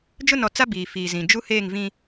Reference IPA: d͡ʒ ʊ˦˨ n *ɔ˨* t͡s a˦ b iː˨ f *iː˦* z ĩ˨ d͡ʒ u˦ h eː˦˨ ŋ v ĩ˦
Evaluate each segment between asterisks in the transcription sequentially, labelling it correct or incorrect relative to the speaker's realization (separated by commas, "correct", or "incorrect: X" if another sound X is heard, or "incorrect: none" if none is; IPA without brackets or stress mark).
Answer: correct, incorrect: iː˨